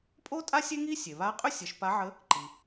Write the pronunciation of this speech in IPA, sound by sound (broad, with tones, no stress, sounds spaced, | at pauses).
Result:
pʼ o˥ tʼ a˥ sʲ e˥ ŋ i˥ sʲ e˩ β a˧˥ qʼ ʏ˥ sʲ ə˩˧ ʃ p a˧˥ ʕ ə˧˥ | ǃ i˩